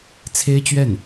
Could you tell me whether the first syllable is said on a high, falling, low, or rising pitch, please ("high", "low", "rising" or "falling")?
high